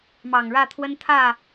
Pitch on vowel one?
low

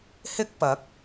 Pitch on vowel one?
high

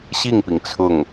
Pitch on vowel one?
falling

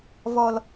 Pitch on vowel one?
low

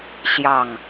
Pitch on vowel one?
falling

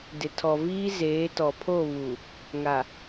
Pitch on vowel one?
low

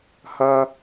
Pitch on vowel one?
high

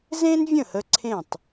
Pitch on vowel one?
high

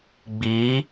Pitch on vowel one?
rising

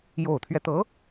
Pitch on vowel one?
low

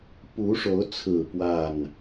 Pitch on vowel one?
rising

